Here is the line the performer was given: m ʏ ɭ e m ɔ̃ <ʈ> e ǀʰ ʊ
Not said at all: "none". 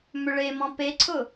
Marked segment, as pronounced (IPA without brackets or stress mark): p